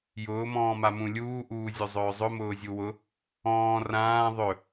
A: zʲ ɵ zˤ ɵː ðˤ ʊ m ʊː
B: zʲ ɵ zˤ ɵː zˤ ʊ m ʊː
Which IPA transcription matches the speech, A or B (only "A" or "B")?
B